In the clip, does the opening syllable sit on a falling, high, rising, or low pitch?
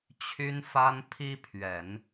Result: high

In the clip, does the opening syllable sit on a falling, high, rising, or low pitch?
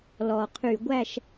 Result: low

